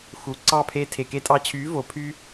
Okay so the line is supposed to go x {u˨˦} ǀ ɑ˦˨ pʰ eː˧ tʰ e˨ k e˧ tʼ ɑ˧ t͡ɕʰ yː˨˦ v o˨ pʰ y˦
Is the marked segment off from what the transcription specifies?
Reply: no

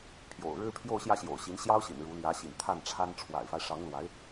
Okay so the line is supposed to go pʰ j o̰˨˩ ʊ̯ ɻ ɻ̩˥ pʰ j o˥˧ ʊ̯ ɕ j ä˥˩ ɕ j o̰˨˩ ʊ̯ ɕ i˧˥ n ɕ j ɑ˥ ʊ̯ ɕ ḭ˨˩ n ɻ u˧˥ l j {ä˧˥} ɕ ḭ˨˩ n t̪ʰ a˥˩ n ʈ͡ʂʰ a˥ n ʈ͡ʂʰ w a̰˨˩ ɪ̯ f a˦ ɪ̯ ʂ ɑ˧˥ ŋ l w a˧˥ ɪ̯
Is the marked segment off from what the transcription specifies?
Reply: no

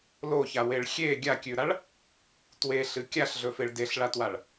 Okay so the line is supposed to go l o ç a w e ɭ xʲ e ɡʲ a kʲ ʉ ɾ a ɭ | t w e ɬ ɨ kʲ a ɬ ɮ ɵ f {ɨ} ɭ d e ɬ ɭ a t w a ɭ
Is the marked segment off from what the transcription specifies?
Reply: yes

